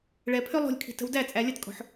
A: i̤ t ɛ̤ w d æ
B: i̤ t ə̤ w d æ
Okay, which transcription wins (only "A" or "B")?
B